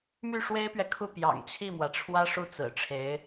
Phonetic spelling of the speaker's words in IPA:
m y˥˩ ʂ w e˥ ɪ̯ p ɥ ɛ˨ kʰ u˥˩ p j ɑ̰˨˩ ŋ t͡ɕʰ i˥˩ m w ä˩ ʈ͡ʂʰ w ä˥ ʂ u˥˩ t͡s ɹ̩˨˩ ʈ͡ʂʰ e˧˥ ɪ̯

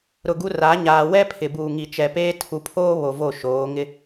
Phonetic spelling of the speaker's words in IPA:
ɾ ʊ˨ ɡ u˦ r a˨˦ ɲ aː˨ w ɛ˦ pʰ ɪ˨ b uː˨ ŋ i˨ t͡ʃ ɛ˨ p eː˦ tʰ u˨ pʰ oː˦ β o˨ v o˦˨ ʃ oː˨˦ ŋ ɪ˦

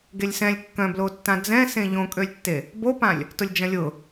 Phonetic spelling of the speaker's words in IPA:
ɡ e lʲ s ɛ̃ lʲ kː œ̃ b l o tː ã d͡z ɛ̃ s ẽ ʎ õ kʼ ø lʲ tː e | b o p ã lʲ | t ʊ lʲ d͡ʒ ɐ̃ lʲ ʊ

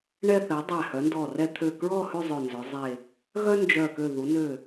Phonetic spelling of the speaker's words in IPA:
ɳ ɛ˧ θ ɛ˩˧ dˤ æ˧˩ h œ˩˧ n d ɔ˧˩ r ɛ˧ t̪ʰ ø˧˩ k ɹ ɔ˥˧ h ʉ˥˧ zˤ ø˧˩ n z œ˩˧ zˤ e˧˩ | ɣ œ˥ n d͡ʒ œ˧˩ k ø˧˩ ð u˩˧ n ø˧˩

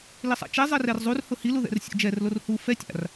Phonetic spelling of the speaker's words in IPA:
l i sˤ a̰ t͡ʃ ɛ zˤ ɛ r ɛ r zˤ u r h ʊ h i l u ð ɛ̰ r sʲ o̰ d͡ʒ ɛ r l o r h u f ɛ tʲ a̰ r

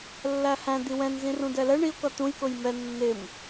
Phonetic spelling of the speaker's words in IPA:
lː æ h æ̃ d̪ i w ɛ̃ n z ĩ r ũ d ɛ l ɛ ɳ i ʊ̯ k ʌ t̪ ũ j k ʊ j m ɛ nː ɪ m

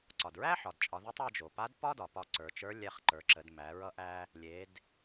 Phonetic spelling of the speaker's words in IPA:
ǀ ɒ˩ d ɹ æ˥ ħ ɒ˩ d t͡ʃʼ ɒ˩˧ ð e˧˥ tˤ ɒ˧ d͡ʒ o˩ p a˧˥ d p ɒ˥ d ɒ˩ p ɒ˧ ǀ ə˞˩˧ t͡ʃ ə˞˧˥ lʲ ɛ˧ χ ǃ ə˞˩˧ ǁ ə˩˧ d m æ˩˧ ɹ ʌ˧ ʔ æ˧ | lʲ e˩˧ d

